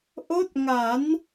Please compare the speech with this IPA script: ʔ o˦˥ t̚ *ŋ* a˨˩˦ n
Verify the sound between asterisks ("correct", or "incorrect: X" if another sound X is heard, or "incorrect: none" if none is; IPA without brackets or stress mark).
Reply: correct